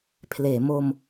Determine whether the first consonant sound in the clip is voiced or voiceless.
voiceless